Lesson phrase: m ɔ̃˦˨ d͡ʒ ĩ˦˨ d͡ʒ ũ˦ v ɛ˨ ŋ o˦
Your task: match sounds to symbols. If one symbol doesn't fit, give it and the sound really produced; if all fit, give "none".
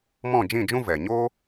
ŋ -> ɲ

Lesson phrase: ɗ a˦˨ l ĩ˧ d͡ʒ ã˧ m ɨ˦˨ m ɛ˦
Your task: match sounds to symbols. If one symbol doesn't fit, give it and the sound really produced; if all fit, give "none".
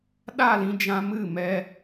none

